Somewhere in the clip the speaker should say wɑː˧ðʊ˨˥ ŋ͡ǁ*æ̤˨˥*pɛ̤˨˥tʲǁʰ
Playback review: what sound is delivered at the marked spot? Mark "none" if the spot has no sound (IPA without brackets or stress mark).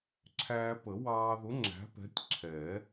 æ̤˨˥